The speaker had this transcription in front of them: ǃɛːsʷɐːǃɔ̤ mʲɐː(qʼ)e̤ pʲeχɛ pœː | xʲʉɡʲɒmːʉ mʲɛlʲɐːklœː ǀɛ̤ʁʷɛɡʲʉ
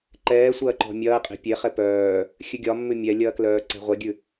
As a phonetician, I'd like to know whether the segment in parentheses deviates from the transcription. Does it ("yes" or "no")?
no